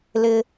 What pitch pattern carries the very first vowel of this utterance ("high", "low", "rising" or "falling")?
low